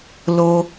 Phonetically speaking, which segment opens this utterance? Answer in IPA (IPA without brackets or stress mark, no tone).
l